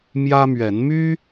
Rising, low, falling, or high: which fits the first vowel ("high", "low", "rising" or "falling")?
high